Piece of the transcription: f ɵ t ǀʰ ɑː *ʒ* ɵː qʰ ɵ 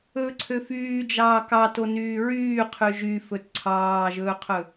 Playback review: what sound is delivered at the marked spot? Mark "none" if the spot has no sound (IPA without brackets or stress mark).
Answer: ʒ